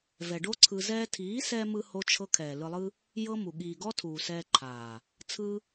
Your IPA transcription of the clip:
vɛ˨ɖo˦ǀʰɯ˧ zɛː˧tʰiː˨˦sɛː˧mɯ˧ ho˦t͡ʃʰɤ˦ kʰɛː˨lɯ˧lˠɯ˦ | jɤ˦mu˨ ɠiː˨ɡɔ˦tʰuː˨ sɛː˧ǃʰaː˨ | t͡sʰɯ˦

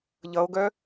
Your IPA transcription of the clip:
ʎʌo̯ɡœ

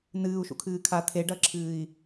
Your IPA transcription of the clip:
nɨːu̯ ʃṵkʰɨːkʰa t̪ʰeɖɐǁʰɨːi̯

